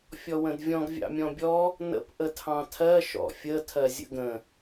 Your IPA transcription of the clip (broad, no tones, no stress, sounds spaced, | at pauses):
fʲ ɔ w ə̃ d vʲ ɔ̃ ɡ vʲ ɑ̰ mʲ ɔ̃ bʲ ɔ | n ə̰ p ʔ ə tʰ ɑ̃ tʰ ɜ ʃ ɔ̰ fʲ ə tʰ ɜ zʲ ə̰ ɡ ə̃